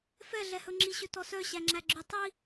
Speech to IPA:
f ɛ ɮ ɛ h ɵ ŋ͡ǁ i ɕ ɵ t ɔ s œ ɕ æ ŋ͡ǁ æ ɡ͡ǁ ʉ tˤ i

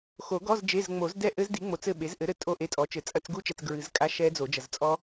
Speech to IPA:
x o˨˩˦ ɡ ɔ˧˥˧ z d͡ʒ e˧˥˧ z ŋ͡m o˨˩˦ z d ɛ˥˩ ʔ ɘ˦˥ z d i˩˥ ŋ͡m o˨ t͡s ɘ˥˩ ɓ e˩˥ z ʔ ɘ˩˥ ɾ ɘ˨ tʼ o˥˩ ʔ e˧˥˧ tʼ ɔ˩˥ t͡ʃ ɘ˨˩˦ t͡sʼ ɐ˧˥˧ t͡s ɡ u˦˥ t͡ʃ ɛ˨ t͡s ɡ ɹ ɨ˨˩˦ z kʼ a˧˥˧ ʃ ɛ˦˥ d͡z o˨˩˦ d͡ʒ ɐ˨ z t͡sʼ ɔ˦˥

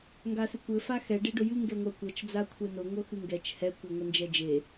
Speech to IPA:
ŋ ɡ a s ɨ kʷ ɘ f a x ɛ ɖ e ɖ ʊ j ɨ ŋ ɡ ɛ ŋʷ a kʷ ɤ t͡ʃ d͡z a kʷʰ e n ʊ ŋʷ ɤ x ɨ ŋ ɡ ɛ t͡ʃ h ɛ kʷ ɛ ŋʷ ɘ n d͡ʒ ɛ d͡ʒ e

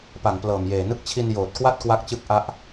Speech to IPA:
p a˨˩ ŋ p l ɤː˨˩ m j eː˨˩ n ɯ˥˩ k̚ t͡ɕʰ i˧ n j oː˨˩ t̚ k w a˥˩ t̚ k w a˦˥ k̚ t͡ɕ ɯ˦˥ k̚ ʔ a˦˥ ʔ

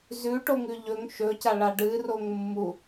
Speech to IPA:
z ʉ ʈ o ŋ ʉ ʎ ɵ ŋ ʃ ɵ c a ɭ a ɖ ɨ r o ŋ mː u

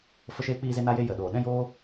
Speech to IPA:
f ə˧ ʃ eː˧ k͡p iː˧ z e˧ n a˧ j e˧ j ə˨ ɗ oː˨ ɗ ɛ̃˦ j oː˦

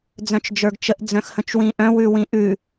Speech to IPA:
d͡z œ̃ t͡ʃ d͡ʒ ə˞ ɡ t͡ʃ ə ʔ d͡z œ̃ x h ə̃ t͡ʃ w ĩ ʔ œ̃ w ʉ w ĩ ʔ ʉ

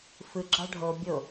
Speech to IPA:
f ɯ ɡ͡ǁ ɑ ɖʱ o bʲ o

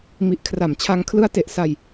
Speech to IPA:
m i˨˩ ʔ kʰ r a˨˩ m t͡ɕʰ a˧ ŋ kʰ l ɯ˦˥ a̯ t e˨˩ ʔ s a˧ j

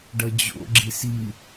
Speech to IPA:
ɖ ʌ d͡ʑ o̰ ɡ͡ǁ i s i

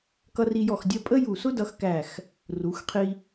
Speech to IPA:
k ʌ˧ r i˧ j ɔ˧˩ x dʲ ɜ˧ pʼ ə˥ j u˧˩ s ʊ˥ d ʌ˧ x k æ˧˩ x | r u˩˧ x qʰ i˧

